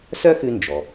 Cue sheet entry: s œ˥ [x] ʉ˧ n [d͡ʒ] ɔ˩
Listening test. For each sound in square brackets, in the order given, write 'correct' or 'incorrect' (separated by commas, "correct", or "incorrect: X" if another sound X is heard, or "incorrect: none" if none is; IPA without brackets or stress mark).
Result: correct, correct